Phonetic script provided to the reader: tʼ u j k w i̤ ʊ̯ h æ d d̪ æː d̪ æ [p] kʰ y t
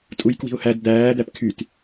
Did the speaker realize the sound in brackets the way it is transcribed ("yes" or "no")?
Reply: yes